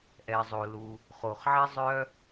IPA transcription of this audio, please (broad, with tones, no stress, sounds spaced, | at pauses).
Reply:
ʔ ɛ˩ zˤ o˩ l u˩ | χ o˩ χ ʕ i˥ zˤ œ˥